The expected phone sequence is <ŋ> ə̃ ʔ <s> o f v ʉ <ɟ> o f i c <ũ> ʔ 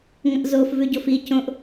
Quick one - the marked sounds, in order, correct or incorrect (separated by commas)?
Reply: correct, incorrect, correct, incorrect